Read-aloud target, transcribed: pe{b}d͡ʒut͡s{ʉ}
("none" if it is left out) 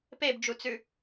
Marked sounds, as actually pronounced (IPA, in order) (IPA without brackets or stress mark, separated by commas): b, ʉ